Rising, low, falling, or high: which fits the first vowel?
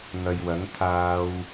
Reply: low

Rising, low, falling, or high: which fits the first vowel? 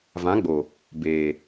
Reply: rising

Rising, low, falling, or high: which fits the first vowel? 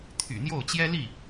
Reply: low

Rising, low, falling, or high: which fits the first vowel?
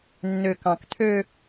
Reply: low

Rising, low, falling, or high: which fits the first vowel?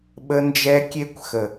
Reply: high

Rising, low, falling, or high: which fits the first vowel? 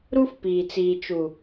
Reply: high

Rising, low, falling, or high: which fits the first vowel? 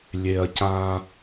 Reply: low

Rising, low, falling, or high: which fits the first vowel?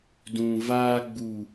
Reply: low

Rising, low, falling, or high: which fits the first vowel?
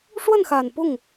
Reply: falling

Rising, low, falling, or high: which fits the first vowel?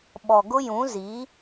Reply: low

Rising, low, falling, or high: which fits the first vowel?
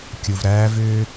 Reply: low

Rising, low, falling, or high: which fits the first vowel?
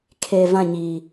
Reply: low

